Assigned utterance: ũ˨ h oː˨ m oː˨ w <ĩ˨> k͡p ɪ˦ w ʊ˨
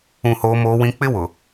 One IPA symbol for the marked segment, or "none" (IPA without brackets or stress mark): ĩ˨